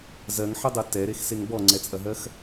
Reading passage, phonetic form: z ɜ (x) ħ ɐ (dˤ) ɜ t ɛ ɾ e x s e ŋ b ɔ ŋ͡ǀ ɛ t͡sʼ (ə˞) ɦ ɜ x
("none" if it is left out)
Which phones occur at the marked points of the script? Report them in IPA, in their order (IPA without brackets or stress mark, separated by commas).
ŋ, dˤ, ɐ